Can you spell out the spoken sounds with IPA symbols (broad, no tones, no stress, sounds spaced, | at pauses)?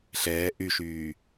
ɬ ɛː ʔ y ʃ yː